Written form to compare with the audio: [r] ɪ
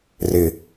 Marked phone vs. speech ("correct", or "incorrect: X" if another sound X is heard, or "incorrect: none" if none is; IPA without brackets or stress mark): correct